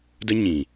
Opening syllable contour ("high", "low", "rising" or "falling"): high